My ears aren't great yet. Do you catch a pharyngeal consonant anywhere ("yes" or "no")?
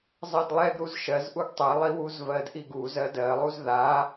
no